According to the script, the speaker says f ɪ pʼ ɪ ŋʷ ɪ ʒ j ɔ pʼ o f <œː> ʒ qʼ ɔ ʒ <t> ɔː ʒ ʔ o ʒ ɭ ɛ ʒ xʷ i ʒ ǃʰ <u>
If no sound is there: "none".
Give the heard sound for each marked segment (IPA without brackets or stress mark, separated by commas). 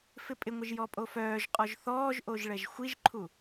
œː, θ, u